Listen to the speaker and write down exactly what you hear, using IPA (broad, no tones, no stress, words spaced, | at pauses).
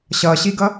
ɕʌɕiɡʌ